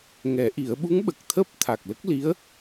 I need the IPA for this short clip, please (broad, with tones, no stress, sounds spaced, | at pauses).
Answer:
ŋ ɛ˨˩˦ ʔ i˨˩˦ ə̯ ɓ u˧˥ ŋ ɓ ə˨˩ k̚ t̪ʰ əː˦˥ p̚ t̪ʰ a˨˩ k̚ l ə˦˥ k̚ l i˧˥ ə̯